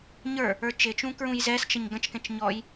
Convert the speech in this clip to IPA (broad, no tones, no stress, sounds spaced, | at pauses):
ɲ ə˞ | ə˞ t͡ʃ ɪ t͡ʃ ũ k ɹ ũ j z ɛ s t͡ʃ ʌ ɲ ɡ ə̃ t͡ʃ k ɛ̃ t͡ʃ ɲ ɔ j